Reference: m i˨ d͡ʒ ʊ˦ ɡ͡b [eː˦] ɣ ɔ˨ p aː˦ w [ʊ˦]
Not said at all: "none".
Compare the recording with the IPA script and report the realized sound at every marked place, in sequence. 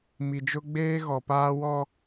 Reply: eː˦, ɔ˦

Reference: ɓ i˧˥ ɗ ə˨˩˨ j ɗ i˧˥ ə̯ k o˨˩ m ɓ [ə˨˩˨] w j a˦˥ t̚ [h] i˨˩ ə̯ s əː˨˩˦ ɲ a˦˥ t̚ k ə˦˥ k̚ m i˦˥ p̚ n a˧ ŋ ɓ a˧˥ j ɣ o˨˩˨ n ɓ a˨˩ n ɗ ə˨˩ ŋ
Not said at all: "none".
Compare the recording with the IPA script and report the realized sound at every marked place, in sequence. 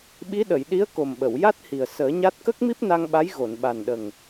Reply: ə˨˩˨, h

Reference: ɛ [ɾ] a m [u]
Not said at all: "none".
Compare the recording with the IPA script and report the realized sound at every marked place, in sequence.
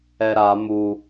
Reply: ɾ, u

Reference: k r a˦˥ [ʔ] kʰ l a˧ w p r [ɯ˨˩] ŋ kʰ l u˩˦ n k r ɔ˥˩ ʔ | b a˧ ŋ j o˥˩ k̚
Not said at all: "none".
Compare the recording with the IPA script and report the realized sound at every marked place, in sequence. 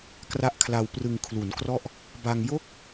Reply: ʔ, ɯ˧

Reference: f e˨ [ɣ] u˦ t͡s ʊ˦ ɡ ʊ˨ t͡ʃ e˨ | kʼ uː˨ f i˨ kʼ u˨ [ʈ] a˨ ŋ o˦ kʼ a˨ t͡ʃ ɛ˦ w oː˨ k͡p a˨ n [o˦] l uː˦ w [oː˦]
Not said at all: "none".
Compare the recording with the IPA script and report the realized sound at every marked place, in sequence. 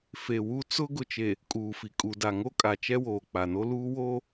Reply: w, d, o˦, oː˦

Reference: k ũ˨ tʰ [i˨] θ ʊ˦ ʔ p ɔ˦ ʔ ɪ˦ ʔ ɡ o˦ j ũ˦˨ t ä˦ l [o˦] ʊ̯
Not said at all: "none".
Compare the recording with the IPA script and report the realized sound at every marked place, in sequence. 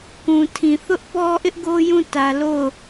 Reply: ĩ˨, o˦˨

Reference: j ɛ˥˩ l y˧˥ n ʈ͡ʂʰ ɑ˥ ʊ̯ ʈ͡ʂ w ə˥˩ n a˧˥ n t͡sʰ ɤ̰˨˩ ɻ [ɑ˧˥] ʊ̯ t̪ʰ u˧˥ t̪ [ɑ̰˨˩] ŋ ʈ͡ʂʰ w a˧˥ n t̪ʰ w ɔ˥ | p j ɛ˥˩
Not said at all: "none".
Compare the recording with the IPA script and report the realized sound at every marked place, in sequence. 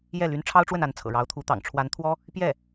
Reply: ɑ˧˥, ɑ̰˨˩

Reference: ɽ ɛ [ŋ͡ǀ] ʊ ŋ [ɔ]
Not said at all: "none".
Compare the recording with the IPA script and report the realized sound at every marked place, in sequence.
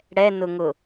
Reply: n, ʊ

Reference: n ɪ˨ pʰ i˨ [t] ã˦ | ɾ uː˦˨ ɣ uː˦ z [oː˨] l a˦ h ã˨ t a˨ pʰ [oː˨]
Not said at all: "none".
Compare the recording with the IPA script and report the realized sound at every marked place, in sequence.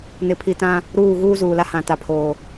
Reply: t, uː˨, oː˨

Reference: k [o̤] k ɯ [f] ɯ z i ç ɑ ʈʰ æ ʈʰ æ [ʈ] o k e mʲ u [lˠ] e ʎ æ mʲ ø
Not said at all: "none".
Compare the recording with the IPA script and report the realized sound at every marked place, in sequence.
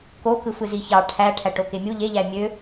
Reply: o, f, ʈ, ʎ

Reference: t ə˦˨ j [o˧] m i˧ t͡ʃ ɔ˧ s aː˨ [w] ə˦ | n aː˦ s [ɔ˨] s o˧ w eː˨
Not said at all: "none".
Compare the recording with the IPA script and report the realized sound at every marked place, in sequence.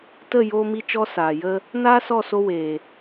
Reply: oː˧, j, ɔ˦˨

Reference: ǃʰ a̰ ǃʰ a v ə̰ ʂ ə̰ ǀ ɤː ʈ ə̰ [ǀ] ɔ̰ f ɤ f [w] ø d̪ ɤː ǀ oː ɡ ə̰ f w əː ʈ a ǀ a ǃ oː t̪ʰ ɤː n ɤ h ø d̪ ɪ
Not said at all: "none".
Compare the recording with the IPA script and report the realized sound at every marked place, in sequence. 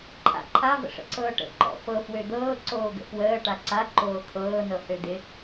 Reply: ǃ, w

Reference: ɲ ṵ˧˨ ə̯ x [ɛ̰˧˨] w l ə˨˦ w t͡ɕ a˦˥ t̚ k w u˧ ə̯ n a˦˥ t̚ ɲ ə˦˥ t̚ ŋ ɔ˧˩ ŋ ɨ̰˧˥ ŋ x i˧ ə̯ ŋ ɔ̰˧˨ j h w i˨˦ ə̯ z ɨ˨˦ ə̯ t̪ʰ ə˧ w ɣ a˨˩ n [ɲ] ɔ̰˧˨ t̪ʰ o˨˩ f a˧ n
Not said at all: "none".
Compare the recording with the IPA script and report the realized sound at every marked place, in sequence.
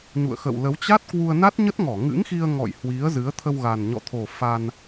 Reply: ə̰˧˨, ɲ

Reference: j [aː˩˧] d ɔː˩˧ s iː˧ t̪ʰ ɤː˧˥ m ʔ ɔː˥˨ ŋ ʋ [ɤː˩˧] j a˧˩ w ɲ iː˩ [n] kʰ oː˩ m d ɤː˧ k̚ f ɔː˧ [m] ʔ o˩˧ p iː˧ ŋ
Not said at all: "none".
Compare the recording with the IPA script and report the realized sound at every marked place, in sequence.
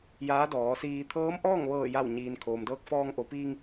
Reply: aː˧˥, ɤː˧˩, n, ŋ

